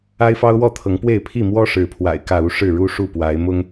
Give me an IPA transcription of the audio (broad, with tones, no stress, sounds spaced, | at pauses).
a˦ ɪ̯ f ɑ˦ ʊ̯ w ɔ˥˨ t̪ʰ ɤ˨˦ ŋ p w e˥˨ ɪ̯ pʰ i˥˨ m w ɔ˦ ʂ ɻ̩˨˦ pʰ w a̰˨˩ ɪ̯ k ä˥˨ u˦ ʂ ɻ̩˥˨ ɻ u˦ ʂ u˥˨ p w a˨˦ ɪ̯ m ʊ˦ ŋ